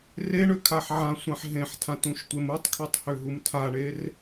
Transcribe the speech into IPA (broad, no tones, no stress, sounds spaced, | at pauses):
r e ɳ ø kʰ a ħ ʕ ã sʷ ã ħ ɦ ẽ ħ tʰ ã t ũ ʃ tʷ e m u tˤ kʰ ø tˤ h ø ɦ u m tʰ a ɳ e r